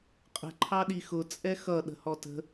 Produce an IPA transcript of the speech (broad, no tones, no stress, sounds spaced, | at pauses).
qʼ ə̤ ǃʰ ɑ ɗ i x ʊ t͡sʼ ɛ x ʌ ɗ ə̤ h ɔ t ə̤